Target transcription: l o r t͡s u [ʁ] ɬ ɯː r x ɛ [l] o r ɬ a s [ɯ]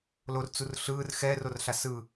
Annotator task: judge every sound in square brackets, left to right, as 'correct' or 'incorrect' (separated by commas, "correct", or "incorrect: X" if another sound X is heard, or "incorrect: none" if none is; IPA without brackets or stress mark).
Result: incorrect: r, incorrect: r, correct